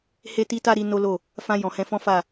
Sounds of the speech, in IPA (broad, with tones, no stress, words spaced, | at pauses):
he˦ti˦ta˦ɾi˧ no˦lo˦˨ | fã˧ jɔ̃˨hɛ̃˧ fɔ̃˦fa˦˨